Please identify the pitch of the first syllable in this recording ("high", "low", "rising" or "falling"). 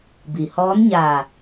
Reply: low